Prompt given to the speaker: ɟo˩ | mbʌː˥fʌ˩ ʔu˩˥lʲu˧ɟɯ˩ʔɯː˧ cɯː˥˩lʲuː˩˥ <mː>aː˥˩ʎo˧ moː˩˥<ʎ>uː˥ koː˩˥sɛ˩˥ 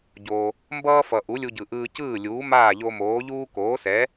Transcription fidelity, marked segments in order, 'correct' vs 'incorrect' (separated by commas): incorrect, correct